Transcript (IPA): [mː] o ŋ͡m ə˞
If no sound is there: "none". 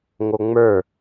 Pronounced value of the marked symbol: ŋ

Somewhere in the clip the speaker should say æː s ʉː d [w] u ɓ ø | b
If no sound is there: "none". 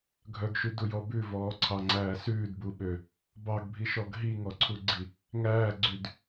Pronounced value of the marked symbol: b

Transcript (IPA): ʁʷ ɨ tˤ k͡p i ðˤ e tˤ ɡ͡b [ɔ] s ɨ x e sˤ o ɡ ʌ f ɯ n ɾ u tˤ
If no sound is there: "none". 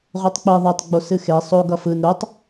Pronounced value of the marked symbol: o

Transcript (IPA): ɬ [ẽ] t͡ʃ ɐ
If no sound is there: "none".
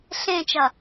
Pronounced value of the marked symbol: ẽ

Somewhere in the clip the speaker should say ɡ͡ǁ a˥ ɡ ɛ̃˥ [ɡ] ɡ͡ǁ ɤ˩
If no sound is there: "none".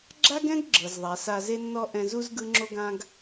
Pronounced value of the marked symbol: ɡ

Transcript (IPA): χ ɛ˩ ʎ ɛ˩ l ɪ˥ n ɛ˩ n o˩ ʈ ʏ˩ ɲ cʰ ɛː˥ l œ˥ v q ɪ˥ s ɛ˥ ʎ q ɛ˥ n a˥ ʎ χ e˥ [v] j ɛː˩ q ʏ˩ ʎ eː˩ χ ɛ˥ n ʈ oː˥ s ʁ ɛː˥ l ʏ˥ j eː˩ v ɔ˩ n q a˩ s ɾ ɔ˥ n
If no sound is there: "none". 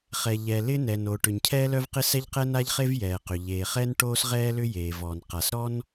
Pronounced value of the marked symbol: v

